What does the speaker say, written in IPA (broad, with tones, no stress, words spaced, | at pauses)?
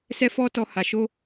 sɛ˦fɔ˦tɔ˧ ha˨ʃo˧